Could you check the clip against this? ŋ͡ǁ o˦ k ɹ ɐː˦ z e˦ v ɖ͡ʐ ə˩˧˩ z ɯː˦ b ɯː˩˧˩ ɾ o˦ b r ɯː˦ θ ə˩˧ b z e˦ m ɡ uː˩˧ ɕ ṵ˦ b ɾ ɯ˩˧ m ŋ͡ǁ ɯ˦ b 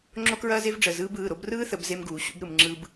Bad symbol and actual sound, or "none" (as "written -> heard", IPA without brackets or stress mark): none